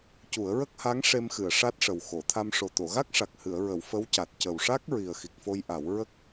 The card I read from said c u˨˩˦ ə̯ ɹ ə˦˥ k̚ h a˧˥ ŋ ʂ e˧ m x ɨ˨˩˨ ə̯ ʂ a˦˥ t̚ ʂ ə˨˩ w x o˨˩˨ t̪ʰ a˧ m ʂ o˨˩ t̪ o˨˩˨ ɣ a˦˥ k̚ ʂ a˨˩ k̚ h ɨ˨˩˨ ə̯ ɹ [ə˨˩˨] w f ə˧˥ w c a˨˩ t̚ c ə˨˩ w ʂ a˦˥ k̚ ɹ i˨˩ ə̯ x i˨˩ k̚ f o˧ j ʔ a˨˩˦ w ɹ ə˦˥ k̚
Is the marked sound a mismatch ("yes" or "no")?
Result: no